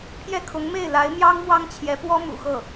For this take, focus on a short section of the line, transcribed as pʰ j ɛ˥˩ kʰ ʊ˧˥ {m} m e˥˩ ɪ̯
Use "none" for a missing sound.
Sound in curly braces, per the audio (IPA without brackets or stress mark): ŋ